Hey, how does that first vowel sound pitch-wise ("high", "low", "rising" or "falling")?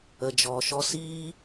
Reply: low